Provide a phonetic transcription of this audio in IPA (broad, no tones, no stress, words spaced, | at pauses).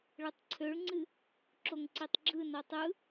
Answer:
ɭɨtˤǀʰøɭŋ͡ǀɨ | ǁoŋǀitˤɡ͡ǁɯnʌ tˤɯ